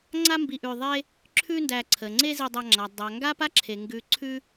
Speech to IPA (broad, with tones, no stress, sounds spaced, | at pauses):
ŋ͡ǀ a˦ m b i˨ ʔ ʉ˨ ðˤ e˦ | ǁʰ ʉ˦ n d æ˨ ǀʰ ə˩ ŋ͡ǀ e˦ z i˨ dˤ a˨ ŋ͡ǁ a˩ dˤ a˩ ŋ ɡ a˥ p a˥ ǁʰ e˩ ŋ ɡ ʉ˨ ǀʰ ʉ˦